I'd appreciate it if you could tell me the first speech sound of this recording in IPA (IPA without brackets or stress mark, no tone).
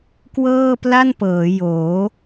k